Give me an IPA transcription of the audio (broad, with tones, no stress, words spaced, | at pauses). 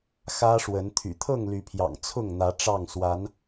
xä˦ʂwə˨˦n t̪ʰy̰˨˩t̪ʰɤ˥˨ŋly˨˦pʰjɑ̰˨˩ŋ t͡sʰʊ˥˨ŋn̪ä˨˦ ʈ͡ʂɑ˥˨ŋswa˨˦n